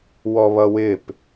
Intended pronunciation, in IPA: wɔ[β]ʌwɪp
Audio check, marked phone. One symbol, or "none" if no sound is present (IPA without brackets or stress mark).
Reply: β